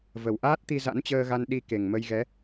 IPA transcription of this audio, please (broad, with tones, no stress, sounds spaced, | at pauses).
v ə˨˩ w ʔ aː˦˥ t̚ t̪ i˧ z a̰˧˥ n t͡ɕ əː˧ ɣ a˧ n ɗ i˧ k e˨˩ ŋ m ə˧ j ɣ ɛ˨˦